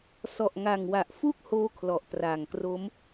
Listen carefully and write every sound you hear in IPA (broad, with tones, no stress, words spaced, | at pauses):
sɔ˨˩ʔŋa˨˩ŋwa˨˩ʔfu˥˩k̚ hoː˦˥kʰlɔ˨˩ʔtraː˨˩ŋkro˦˥m